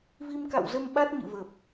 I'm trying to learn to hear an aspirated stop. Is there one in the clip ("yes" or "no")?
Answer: no